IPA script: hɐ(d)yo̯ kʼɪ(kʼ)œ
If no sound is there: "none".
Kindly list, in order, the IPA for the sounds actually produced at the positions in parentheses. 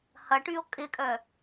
ʈ, kʼ

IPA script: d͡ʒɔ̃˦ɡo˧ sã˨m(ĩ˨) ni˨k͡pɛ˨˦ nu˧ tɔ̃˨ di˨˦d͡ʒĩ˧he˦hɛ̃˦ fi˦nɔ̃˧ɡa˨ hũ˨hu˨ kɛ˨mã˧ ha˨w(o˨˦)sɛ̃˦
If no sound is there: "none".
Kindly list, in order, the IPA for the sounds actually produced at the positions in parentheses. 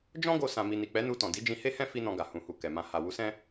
i˨, u˨˦

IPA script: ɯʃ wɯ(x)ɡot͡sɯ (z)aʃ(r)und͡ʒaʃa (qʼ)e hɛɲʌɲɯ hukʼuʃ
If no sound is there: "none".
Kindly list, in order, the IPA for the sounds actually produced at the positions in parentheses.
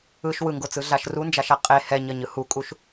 ŋ, ɮ, r, qʼ

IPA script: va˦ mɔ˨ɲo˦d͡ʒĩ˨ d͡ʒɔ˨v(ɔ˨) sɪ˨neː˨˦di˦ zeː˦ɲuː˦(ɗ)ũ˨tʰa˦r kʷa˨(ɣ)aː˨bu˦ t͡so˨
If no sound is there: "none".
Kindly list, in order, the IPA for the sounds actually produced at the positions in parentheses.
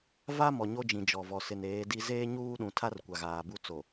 ɔ˨, ɗ, ɣ

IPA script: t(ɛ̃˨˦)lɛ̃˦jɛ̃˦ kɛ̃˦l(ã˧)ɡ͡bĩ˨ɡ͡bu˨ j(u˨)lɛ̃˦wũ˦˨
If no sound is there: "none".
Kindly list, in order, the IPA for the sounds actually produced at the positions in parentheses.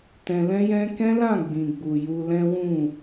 ɛ̃˧, ã˦˨, u˧

